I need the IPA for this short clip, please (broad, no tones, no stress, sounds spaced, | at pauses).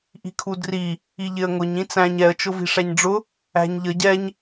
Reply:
ʔ i̤ kʰ u d r i | i ʎ ɪ ə̯ ŋ ʊ ɲ ĩ t͡s æ̃ ɲ ɛ ə̯ t͡ʃ ʊ v i̤ ʂ æ ɲ ɖ͡ʐ ʊ | æ̤ ɲ ʎ ə ɟ ɛ ɲ